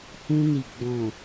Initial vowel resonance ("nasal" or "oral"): nasal